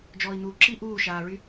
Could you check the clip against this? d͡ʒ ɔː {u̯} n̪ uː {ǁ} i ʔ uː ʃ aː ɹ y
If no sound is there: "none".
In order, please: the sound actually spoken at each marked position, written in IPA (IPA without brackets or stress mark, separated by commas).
i̯, ǁ